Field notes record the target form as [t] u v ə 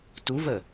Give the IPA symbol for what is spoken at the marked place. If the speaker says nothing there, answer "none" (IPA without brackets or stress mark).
t